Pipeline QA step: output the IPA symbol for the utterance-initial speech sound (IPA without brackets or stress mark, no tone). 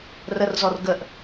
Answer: r